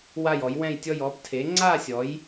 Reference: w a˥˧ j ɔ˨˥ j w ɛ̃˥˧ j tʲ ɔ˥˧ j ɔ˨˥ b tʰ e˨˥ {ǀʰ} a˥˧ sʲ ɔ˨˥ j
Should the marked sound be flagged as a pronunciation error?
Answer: yes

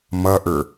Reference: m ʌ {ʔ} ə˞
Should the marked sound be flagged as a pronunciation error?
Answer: no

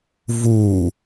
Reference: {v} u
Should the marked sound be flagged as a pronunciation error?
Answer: no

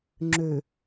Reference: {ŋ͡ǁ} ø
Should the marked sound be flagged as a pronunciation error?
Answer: no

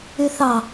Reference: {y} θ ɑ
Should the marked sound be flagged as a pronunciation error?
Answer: no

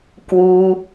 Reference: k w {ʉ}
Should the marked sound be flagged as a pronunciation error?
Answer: yes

